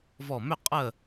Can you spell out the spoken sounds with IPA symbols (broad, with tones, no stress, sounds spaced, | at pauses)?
v ɔ˧˩ m ʏ˥˨ qʼ ə˥˨